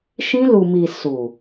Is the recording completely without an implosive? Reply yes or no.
yes